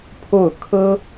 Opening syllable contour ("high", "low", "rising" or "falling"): falling